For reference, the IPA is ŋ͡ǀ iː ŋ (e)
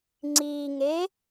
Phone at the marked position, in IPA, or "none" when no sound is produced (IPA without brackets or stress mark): e